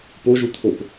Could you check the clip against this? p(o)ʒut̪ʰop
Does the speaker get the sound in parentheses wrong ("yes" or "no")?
no